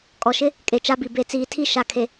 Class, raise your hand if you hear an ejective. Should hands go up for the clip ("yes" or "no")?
yes